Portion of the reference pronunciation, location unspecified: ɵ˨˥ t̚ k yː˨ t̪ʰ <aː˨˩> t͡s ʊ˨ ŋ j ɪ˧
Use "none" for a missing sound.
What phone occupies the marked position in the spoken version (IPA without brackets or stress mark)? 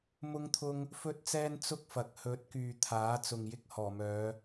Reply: aː˨˥